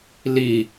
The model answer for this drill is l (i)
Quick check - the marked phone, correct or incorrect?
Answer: correct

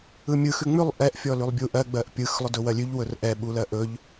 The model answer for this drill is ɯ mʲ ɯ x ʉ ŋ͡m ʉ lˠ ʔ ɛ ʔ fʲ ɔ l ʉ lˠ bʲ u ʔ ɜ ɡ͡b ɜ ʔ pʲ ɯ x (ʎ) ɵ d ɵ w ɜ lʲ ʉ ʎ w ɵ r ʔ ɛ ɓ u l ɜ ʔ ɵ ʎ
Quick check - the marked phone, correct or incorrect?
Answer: incorrect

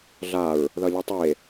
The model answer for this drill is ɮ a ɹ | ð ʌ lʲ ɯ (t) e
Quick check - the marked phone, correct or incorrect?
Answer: incorrect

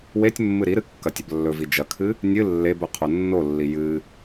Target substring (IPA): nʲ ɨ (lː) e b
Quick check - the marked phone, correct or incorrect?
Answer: correct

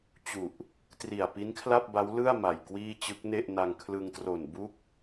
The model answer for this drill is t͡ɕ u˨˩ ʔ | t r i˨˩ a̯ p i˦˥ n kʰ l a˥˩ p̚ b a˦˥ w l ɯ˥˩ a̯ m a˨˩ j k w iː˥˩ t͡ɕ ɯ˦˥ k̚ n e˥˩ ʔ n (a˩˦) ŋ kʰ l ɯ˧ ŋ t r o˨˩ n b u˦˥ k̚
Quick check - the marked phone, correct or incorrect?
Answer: incorrect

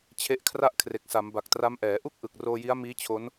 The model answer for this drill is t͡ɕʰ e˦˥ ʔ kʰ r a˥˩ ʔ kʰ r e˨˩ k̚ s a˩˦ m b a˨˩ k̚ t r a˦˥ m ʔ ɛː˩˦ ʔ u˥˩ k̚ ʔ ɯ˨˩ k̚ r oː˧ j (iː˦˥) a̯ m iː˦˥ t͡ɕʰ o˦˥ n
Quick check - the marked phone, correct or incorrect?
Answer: incorrect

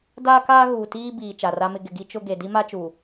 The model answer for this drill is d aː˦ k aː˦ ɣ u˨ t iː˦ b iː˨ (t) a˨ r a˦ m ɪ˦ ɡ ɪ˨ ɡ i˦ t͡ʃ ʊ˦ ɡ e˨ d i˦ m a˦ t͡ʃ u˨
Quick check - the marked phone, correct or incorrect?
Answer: incorrect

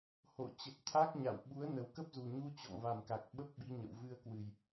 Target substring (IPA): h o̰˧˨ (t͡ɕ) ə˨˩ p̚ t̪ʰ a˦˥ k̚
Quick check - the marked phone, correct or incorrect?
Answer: correct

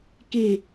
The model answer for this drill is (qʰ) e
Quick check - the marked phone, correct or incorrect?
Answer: incorrect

